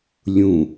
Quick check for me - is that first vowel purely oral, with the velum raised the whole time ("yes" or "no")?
no